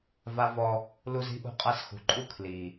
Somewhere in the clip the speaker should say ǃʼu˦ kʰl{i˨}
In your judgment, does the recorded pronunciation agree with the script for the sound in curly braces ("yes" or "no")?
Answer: yes